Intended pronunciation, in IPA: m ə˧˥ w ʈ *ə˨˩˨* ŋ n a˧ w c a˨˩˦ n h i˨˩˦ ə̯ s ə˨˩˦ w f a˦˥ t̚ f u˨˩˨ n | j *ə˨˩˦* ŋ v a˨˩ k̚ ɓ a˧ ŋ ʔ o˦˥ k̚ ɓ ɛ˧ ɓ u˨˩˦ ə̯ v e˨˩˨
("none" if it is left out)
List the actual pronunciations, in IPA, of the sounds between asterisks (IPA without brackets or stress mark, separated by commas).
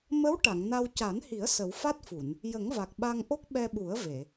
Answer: a˨˩˨, ə˨˩˦